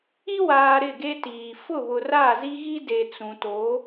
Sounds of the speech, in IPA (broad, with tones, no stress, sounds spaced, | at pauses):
i˦ w aː˨ ɾ ɪ˦˨ ɡ e˦ t iː˨ f ʊ˦˨ β ʊ˨ r a˦˨ z i˦ ɣ i˦ d e˨ t͡s ũ˨ t o˨˦